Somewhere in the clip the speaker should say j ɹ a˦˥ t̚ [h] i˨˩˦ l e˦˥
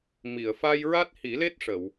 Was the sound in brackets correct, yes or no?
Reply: yes